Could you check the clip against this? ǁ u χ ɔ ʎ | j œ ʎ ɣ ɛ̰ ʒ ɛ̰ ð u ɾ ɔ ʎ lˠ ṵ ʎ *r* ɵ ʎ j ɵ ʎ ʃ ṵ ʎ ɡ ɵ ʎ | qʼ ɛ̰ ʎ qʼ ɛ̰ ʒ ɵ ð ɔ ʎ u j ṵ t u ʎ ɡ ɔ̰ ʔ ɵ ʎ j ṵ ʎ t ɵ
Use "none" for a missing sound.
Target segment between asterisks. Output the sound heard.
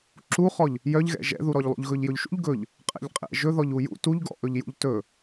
ɣ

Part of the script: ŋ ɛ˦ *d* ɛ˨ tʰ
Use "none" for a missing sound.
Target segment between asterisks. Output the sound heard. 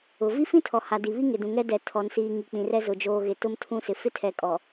d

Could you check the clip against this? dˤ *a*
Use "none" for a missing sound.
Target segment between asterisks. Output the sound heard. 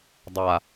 a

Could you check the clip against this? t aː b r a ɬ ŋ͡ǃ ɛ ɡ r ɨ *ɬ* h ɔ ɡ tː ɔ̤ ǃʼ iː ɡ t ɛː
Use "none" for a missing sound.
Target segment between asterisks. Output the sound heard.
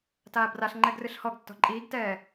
ɬ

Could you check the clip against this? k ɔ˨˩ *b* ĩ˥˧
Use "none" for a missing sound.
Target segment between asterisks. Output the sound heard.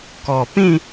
p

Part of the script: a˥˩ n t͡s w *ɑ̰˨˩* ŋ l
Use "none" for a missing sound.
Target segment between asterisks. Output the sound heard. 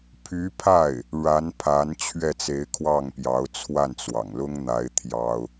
ɑ̰˨˩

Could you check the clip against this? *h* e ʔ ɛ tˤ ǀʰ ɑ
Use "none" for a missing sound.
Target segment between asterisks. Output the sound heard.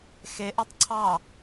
x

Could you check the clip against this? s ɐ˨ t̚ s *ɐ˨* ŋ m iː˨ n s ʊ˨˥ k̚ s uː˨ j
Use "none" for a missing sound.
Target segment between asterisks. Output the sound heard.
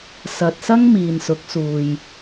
ɐ˥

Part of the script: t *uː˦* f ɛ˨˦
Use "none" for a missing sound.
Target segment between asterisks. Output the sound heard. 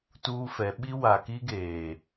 uː˦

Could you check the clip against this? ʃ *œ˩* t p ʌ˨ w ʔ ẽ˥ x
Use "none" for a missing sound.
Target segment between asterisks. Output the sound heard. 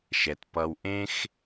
ɛ˩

